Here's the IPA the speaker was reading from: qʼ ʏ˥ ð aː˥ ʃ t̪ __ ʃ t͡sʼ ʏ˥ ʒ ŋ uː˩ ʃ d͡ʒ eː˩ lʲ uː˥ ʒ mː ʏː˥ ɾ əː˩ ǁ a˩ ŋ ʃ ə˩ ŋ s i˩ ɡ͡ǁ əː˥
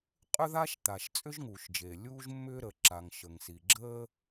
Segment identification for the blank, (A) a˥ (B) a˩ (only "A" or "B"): B